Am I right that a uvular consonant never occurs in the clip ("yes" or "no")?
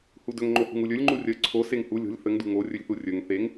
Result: yes